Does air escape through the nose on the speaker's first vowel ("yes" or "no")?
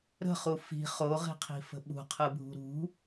no